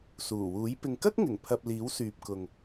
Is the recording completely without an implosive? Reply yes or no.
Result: yes